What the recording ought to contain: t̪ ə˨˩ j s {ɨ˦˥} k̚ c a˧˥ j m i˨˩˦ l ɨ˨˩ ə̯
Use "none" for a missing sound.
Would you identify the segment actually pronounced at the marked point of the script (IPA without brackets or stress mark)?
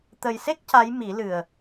e˦˥